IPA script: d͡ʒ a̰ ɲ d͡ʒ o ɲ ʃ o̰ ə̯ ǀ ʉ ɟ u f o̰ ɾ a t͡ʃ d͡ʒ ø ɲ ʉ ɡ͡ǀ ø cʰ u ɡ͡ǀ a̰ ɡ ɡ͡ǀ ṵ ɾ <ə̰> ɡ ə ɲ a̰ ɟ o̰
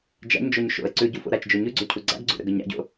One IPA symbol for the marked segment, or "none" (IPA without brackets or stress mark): ə̰